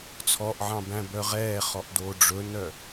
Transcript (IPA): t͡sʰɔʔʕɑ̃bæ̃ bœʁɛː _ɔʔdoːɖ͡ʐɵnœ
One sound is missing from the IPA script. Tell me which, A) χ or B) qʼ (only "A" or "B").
A